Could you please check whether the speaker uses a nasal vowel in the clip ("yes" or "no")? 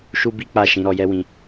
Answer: yes